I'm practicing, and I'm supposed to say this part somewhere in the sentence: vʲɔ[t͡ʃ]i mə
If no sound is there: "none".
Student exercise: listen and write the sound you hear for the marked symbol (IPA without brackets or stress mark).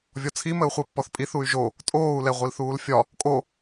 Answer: t͡sʰ